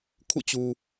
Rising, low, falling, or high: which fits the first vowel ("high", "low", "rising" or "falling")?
falling